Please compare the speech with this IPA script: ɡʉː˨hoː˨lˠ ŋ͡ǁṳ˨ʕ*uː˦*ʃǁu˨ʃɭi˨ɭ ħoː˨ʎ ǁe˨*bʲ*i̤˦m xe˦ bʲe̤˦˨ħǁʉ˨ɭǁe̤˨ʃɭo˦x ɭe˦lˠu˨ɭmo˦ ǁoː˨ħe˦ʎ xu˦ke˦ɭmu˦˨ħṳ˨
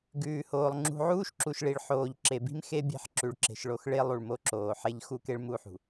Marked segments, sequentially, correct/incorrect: correct, incorrect: b

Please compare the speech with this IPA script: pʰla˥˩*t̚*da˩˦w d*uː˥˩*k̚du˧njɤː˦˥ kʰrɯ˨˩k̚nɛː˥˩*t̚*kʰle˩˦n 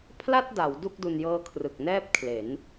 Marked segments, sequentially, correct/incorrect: correct, incorrect: u˥˩, incorrect: p̚

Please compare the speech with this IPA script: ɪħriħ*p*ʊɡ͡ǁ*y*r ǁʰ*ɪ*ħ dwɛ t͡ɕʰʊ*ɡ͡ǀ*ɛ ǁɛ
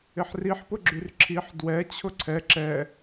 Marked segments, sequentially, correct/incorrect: correct, correct, incorrect: i, incorrect: ǀʰ

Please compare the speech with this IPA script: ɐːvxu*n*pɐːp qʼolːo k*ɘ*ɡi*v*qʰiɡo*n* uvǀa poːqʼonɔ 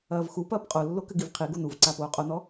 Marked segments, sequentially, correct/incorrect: incorrect: none, correct, correct, correct

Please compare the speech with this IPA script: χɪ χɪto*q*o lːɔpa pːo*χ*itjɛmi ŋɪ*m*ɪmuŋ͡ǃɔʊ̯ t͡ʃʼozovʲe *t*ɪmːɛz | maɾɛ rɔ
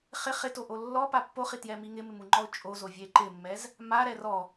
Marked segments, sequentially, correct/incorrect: incorrect: ʔ, correct, correct, incorrect: ǃ

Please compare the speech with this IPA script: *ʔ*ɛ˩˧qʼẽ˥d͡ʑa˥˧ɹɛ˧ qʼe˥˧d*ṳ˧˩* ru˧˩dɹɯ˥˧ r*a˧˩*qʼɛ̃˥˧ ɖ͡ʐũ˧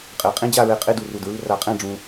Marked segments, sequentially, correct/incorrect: incorrect: qʼ, incorrect: u˧˩, incorrect: a˧

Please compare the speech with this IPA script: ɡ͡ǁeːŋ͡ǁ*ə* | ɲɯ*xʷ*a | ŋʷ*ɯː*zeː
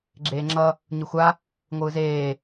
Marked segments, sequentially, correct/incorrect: incorrect: ʌ, correct, correct

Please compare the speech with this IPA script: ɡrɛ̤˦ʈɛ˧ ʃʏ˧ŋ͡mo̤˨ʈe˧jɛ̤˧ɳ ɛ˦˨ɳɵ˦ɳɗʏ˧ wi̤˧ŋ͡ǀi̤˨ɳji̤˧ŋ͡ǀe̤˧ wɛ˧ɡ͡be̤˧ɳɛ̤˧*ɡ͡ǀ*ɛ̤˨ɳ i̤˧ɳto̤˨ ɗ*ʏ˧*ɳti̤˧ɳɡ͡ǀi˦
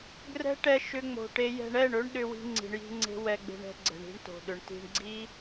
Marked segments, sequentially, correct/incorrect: correct, incorrect: ʏ˨

